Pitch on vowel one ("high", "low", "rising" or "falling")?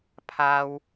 high